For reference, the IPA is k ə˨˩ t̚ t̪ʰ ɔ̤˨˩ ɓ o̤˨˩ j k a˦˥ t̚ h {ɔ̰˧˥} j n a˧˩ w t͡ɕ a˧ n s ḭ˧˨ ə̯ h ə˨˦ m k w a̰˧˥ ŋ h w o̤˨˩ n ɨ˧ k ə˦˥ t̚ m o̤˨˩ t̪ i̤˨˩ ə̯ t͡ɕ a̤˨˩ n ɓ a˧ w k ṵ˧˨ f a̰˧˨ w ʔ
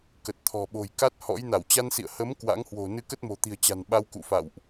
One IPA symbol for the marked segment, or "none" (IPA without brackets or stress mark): ɔ̰˧˥